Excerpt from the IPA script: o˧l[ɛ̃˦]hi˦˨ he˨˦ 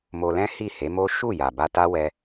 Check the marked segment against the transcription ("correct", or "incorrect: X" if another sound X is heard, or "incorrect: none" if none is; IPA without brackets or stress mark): correct